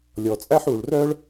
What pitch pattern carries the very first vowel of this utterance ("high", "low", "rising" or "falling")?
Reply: low